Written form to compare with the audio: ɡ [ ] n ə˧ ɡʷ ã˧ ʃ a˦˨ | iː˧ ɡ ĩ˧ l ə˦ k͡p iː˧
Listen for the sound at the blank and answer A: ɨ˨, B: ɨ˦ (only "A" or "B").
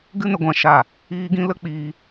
B